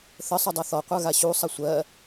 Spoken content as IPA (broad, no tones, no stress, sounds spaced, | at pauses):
θ ə sˤ o dˤ a θ ɔ qʷ ə˞ ɣ a ɕ u sˤ ɐ sʷ ɜ